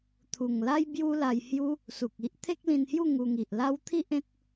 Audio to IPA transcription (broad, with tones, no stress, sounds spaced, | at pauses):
t̪ʰ u˨˩ ŋ l a˦ j b j u˦ l a˧ j h j u˦ | s u˨ k̚ i˦ ʔ t̪ʰ e˦ k̚ l ĩ˧ n h j u˥˧ ŋ u˧ ŋ i˨ ʔ l a˦ w t̪ʰ i˦ ʔ ẽ˦ t̚